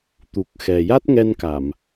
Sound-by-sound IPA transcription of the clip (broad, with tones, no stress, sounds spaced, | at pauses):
t̪ u˨˩ k̚ x ɛ˨˩ j a˦˥ t̚ ŋ ɛ˧ n k a˨˩˨ m